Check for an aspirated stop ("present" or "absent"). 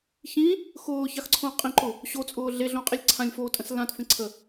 present